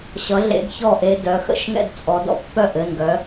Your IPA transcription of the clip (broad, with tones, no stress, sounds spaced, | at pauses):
ɕ ʌ˨˦ ɮ ḛ˨˦ d ç ɔ˥˨ ʔ e˦ d œ˩˧˩ x ə̰˥˨ ʃ ŋ ɛ̰˥˨ d t͡sʼ ɔ˨˦ d ɔ̰˦ pː œ˥˨ ʔ ɘ˩˧˩ n ɡ œ˨˦